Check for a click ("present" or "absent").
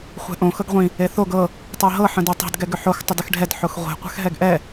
absent